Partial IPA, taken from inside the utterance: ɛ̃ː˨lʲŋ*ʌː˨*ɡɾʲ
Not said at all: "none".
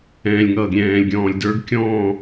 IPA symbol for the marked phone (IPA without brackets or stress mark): ʌː˨